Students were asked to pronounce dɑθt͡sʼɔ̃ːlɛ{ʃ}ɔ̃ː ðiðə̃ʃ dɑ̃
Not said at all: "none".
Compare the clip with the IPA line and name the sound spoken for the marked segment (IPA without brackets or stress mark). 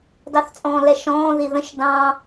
ʃ